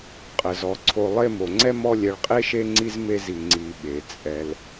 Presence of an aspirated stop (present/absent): present